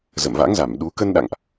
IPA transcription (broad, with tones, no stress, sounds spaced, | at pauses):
z ə̰˧˨ m v a̰˧˥ ŋ z a˧˩ m ɗ u˨˦ k ə˧ n ɗ a̰˧˨ ŋ ʔ